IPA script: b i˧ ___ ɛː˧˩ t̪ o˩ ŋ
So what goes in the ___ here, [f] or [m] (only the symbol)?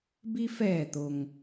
f